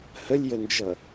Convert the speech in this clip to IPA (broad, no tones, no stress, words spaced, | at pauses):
həlʲjənd͡ʒʌ